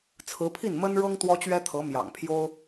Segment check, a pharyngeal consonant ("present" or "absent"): absent